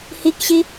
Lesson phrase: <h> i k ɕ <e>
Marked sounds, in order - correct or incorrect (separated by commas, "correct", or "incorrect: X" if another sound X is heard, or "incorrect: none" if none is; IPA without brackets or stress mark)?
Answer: correct, incorrect: i